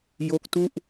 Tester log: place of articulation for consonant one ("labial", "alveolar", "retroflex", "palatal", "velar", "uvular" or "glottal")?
palatal